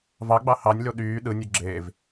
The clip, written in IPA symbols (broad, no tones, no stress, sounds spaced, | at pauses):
v ɑ ɡ͡b ɑ h ɑ nʲ l o ɗ yː ɗ ɯ nʲ u ɡ͡ǁ e v